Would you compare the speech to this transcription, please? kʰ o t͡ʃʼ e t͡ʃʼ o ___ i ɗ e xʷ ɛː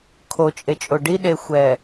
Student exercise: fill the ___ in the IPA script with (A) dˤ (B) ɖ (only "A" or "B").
B